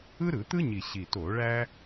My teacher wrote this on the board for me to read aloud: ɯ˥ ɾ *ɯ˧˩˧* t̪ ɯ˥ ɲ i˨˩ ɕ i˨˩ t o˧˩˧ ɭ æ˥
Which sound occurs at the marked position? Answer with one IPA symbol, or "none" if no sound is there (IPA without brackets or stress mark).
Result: ɯ˧˩˧